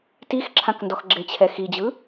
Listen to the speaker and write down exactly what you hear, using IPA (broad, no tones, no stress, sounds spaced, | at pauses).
t i x ǁʰ ã k n d ɔ x ɡ͡ǁ e t͡ɕʰ ɛ x i d͡ʑ ɯ